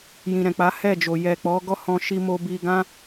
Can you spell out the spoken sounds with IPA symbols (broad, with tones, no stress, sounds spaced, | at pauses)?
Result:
j ĩ˨ ɾ ɛ̃˨ k͡p a˨˦ h ɛ˦˨ d͡ʒ o˨ j ɛ˨ k͡p ɔ˨˦ ɡ ɔ˦ h ɔ̃˧ ʃ i˧ m o˧ b i˧ ɡ ã˦